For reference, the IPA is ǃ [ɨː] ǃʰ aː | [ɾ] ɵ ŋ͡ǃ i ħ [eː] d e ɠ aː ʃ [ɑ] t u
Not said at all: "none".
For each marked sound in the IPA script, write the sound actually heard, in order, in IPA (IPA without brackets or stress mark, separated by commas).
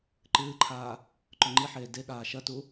ɨː, ǃ, eː, ɐ